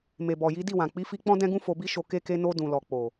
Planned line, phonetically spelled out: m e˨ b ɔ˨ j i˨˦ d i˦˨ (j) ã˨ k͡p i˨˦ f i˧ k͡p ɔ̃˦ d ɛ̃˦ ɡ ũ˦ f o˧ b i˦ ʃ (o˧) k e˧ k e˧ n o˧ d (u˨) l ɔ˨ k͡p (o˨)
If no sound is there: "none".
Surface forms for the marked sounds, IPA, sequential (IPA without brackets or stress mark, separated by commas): w, o˧, ũ˨, o˨